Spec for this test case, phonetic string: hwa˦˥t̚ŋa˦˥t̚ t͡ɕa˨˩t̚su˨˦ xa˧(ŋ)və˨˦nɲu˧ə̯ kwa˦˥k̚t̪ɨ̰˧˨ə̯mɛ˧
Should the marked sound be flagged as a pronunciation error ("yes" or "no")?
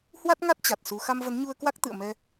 yes